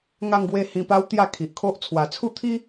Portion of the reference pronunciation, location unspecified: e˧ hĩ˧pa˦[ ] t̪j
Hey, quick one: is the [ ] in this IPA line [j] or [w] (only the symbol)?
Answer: w